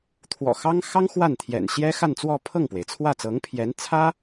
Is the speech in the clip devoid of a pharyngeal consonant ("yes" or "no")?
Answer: yes